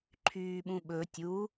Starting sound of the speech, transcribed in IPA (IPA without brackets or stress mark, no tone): ǃʰ